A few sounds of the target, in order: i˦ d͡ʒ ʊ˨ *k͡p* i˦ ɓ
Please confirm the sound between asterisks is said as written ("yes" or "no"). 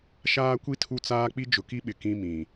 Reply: no